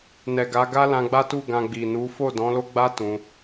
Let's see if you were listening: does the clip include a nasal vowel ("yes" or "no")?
yes